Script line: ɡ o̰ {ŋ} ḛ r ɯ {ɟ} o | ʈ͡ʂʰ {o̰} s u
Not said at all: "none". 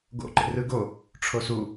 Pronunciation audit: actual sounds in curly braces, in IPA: ǃ, ɡ, o

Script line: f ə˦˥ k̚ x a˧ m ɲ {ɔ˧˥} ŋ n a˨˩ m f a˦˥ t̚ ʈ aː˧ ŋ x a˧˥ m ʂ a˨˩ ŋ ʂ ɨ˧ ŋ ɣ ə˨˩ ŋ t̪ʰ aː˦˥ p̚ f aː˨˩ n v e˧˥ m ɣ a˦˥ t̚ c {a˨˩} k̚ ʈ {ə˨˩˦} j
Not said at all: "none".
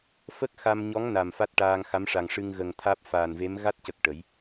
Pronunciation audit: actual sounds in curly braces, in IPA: ɔ˧˥, ə˨˩, ə˨˩˦

